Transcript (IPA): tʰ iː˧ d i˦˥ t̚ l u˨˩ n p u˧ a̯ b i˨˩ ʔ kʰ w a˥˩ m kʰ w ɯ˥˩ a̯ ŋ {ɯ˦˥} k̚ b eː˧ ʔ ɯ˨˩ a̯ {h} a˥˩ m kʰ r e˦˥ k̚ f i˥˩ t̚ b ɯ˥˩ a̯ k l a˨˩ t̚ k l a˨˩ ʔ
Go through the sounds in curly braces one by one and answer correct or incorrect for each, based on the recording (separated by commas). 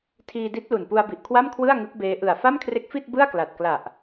correct, incorrect